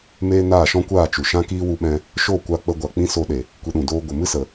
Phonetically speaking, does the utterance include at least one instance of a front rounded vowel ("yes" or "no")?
no